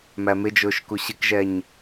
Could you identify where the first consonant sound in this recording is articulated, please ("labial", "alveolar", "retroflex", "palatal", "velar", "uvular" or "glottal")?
labial